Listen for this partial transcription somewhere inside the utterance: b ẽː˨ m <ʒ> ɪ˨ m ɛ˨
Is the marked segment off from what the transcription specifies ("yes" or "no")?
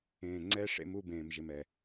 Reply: no